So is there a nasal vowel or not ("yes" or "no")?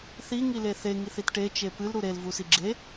no